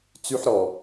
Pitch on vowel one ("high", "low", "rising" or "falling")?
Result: high